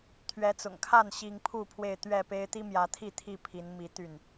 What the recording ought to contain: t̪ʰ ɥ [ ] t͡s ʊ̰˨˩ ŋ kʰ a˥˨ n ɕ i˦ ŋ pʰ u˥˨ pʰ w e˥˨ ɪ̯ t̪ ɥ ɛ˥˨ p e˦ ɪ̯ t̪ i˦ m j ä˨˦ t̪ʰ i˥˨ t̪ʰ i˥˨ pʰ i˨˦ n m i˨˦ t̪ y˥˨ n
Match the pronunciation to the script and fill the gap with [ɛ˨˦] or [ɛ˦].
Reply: ɛ˨˦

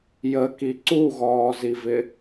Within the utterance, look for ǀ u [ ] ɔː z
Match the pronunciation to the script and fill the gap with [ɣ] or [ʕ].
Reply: ɣ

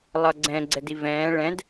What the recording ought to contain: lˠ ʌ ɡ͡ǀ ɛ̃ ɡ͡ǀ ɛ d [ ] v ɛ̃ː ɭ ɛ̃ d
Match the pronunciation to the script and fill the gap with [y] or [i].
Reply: i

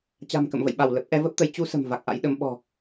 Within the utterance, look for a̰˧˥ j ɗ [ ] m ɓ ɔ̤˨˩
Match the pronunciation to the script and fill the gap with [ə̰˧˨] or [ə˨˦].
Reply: ə˨˦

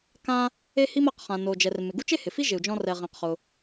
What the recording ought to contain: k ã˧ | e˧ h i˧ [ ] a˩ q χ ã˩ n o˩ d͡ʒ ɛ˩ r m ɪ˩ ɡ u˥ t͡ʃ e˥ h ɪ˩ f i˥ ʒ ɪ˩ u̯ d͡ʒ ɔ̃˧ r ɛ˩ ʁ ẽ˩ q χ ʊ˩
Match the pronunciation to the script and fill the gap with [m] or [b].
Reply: m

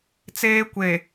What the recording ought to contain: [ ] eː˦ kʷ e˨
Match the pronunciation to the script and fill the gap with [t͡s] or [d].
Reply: t͡s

